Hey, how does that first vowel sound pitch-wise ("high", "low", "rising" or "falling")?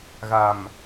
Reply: low